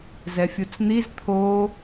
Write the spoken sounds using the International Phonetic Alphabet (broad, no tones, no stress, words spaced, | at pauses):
zɛfʲut͡sn̪iz t̪ʰo